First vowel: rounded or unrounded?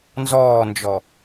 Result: rounded